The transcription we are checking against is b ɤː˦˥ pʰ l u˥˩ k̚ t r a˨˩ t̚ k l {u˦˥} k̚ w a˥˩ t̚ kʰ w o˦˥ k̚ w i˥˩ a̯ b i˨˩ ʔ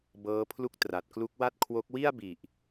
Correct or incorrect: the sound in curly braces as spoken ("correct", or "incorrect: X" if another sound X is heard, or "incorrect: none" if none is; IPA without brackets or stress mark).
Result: correct